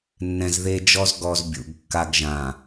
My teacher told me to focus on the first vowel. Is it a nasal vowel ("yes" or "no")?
yes